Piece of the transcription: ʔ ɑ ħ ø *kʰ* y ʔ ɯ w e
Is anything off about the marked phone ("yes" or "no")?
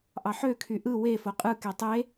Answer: no